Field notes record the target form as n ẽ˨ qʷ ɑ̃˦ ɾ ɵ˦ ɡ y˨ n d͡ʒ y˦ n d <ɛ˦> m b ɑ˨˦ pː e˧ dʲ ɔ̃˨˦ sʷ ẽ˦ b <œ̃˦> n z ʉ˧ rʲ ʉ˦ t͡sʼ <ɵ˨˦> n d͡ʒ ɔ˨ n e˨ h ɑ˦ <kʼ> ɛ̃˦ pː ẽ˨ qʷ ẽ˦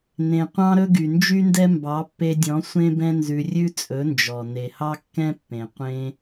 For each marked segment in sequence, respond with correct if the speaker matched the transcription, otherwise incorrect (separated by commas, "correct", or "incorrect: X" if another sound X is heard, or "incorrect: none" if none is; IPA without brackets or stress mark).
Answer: correct, incorrect: ɛ̃˦, correct, incorrect: kː